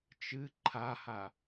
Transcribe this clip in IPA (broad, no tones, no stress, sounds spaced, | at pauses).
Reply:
t͡ʃ ɨ ǃʰ a h a